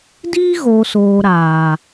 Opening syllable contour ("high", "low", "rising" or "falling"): high